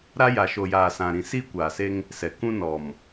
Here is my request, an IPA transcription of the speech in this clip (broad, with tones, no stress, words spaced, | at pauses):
ɾa˦ja˨ʃo˨jaː˨ sã˨ ɾĩ˨siː˦kʷaː˨se˦ŋ | sɛ˨ kũ˦nɔ˨m